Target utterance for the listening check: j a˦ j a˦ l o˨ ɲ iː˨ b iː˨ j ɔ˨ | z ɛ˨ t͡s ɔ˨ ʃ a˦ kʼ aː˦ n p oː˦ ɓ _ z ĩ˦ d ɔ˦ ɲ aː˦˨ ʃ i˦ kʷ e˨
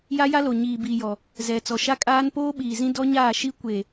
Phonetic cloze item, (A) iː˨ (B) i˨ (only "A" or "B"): A